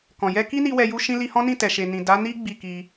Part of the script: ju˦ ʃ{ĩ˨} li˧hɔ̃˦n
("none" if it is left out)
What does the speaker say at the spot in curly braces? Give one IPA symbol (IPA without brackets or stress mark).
ĩ˦